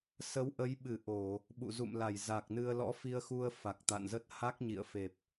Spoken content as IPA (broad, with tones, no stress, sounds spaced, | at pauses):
s ə˨˦ w ʔ ə˨˦ j ɓ ɨ˧˩ ʔ o˧˩˨ | ɓ ṵ˧˨ z ṵ˧˨ m l a˧˩ j z a˨˩ k̚ n ɨ˧ ə̯ l ɔ̰˧˥ f i˧ ə̯ x u˧ ə̯ f a˨˩ k̚ t̪ a̰˧˨ n z ə˦˥ t̚ h a˦˥ k̚ ɲ ḭ˧˨ ə̯ f e˨˩ p̚